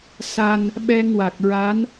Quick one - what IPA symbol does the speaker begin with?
s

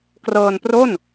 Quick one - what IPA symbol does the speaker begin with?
k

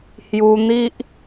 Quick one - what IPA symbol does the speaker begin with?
h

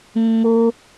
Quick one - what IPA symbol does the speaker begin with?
mː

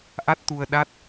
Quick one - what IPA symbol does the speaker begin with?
ʔ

